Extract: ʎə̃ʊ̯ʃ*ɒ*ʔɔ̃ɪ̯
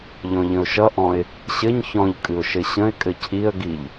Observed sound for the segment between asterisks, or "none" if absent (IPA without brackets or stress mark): ʌ